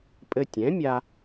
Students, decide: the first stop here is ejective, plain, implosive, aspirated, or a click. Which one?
ejective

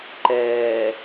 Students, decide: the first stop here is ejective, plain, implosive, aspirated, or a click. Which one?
click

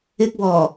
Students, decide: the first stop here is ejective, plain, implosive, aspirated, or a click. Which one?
plain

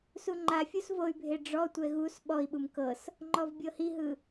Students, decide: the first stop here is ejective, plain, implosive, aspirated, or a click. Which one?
click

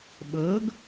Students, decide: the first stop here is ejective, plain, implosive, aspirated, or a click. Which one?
implosive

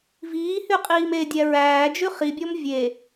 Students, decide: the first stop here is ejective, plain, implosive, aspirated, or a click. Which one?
ejective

